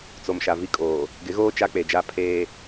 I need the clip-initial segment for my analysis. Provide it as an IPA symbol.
t͡s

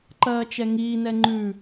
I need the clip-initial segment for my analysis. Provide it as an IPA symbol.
ǃ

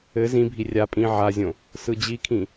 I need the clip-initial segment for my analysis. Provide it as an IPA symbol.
ɘ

